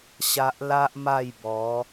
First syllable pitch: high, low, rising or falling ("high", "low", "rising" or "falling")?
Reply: high